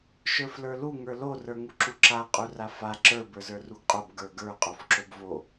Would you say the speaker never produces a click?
no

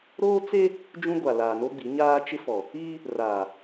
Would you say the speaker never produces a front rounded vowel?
yes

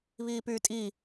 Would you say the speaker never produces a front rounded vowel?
no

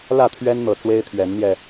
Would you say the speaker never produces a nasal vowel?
yes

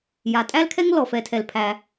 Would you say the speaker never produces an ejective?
no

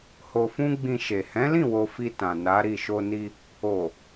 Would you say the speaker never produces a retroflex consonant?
yes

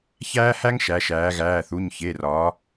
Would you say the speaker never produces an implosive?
yes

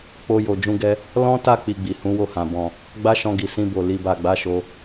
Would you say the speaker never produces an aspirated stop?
yes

